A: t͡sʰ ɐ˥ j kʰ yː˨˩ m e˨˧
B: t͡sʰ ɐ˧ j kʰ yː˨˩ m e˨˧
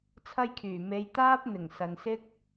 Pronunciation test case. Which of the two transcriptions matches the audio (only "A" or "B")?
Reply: A